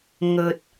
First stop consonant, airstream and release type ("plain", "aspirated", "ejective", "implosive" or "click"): plain